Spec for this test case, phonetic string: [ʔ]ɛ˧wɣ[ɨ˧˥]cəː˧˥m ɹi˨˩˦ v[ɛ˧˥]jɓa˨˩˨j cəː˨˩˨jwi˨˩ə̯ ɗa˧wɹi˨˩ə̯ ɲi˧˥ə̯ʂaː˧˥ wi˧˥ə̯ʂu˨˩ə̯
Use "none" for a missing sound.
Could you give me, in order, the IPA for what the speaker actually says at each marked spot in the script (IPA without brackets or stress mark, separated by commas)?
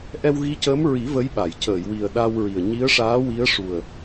ʔ, i˧˥, ə˧˥